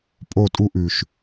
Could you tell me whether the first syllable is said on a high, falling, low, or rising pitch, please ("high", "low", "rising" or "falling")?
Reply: falling